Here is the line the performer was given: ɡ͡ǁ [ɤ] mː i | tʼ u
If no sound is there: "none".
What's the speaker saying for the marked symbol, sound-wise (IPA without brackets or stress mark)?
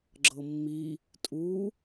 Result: ɤ